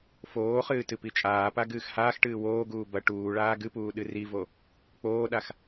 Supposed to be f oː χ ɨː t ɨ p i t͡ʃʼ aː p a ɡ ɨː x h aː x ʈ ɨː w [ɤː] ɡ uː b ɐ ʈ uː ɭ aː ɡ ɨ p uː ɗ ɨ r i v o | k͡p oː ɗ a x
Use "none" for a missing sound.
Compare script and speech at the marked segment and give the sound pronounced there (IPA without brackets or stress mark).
oː